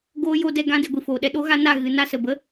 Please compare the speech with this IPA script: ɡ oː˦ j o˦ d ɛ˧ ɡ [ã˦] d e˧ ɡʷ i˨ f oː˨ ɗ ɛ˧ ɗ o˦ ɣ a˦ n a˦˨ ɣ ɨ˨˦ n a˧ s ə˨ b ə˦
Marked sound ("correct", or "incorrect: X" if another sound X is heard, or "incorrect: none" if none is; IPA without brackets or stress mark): correct